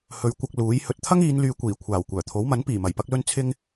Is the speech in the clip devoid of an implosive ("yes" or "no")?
yes